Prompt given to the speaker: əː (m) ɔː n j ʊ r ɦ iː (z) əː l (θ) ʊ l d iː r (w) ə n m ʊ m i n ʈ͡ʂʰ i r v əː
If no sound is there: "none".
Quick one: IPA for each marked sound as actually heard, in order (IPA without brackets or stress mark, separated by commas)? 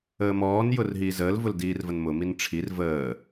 m, z, v, v